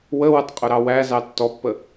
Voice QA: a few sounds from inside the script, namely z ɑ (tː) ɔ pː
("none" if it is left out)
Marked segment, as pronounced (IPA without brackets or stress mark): tː